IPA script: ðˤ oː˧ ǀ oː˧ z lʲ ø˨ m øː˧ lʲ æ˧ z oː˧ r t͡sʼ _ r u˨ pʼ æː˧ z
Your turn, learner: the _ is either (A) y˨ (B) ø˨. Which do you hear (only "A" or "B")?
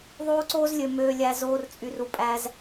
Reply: A